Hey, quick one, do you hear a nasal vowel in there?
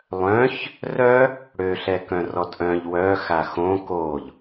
yes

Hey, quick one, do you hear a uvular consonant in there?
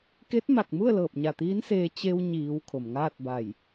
no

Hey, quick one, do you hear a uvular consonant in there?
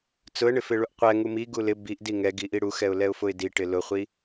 yes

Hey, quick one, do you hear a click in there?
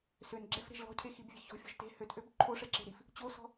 yes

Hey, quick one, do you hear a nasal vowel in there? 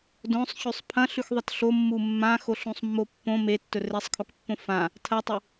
yes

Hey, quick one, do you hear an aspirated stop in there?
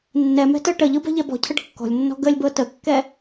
yes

